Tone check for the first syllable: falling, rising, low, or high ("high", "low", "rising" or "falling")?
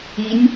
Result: rising